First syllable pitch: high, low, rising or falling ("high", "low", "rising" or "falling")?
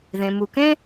low